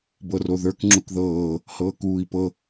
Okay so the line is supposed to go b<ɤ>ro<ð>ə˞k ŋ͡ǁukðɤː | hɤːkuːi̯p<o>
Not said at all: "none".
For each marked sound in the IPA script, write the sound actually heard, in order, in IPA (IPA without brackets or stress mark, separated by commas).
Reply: ɤ, ð, ɤ